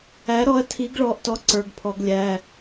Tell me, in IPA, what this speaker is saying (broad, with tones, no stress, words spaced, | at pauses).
æ˩˥ɾɔ˩˥ɐ̯ tʰi˩˥ɡɭɔ˩˧ʔtɔ˩˥ ǀə˞˩˧˩ɡpʰɔ˩˧ɡlʲæ˩˧˩